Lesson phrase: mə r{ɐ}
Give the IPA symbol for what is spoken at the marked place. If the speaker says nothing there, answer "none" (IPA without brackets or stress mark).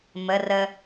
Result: ə